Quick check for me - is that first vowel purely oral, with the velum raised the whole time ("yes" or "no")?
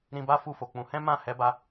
no